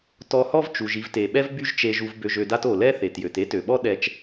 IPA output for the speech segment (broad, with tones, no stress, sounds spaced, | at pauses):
t ɔ˧ h ɔ˥ v t͡ʃ u˩ ʒ i˧ v t e˩ ɓ ɛ˥ v b y˥ ʒ t͡ʃ e˧ ʒ u˧ v b ø˧ ʒ ø˧ d a˥ t o˩ l ɛ˥ θ e˩ t j ø˩ t e˥ t ø˩ ɓ ɔ˥ ɗ ɛ˧ t͡ʃ